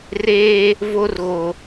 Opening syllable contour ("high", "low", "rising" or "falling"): high